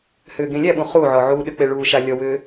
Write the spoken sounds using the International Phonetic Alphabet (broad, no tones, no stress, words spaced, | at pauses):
hʏːɡẽlʲæɓũ χuʕɔ ʕuːɗʏk͡pe ɭuːʃalʲɔwʏː